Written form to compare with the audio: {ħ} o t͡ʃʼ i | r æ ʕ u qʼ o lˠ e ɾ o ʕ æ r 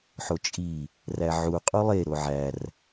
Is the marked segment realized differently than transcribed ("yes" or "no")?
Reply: no